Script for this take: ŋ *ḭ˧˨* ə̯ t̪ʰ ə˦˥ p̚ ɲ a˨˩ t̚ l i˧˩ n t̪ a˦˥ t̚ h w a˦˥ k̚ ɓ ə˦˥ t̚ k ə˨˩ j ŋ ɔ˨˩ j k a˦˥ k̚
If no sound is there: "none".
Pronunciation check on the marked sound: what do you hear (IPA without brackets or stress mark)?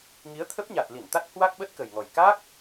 i˨˦